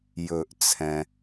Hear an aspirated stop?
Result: yes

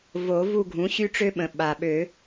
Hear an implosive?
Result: yes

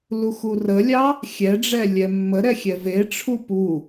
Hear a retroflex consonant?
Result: yes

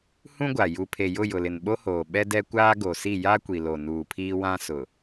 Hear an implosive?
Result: yes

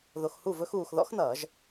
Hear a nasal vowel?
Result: no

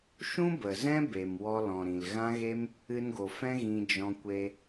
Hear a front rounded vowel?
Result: no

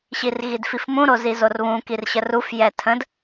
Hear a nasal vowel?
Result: yes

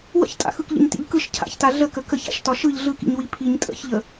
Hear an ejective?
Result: yes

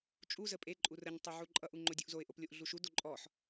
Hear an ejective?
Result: yes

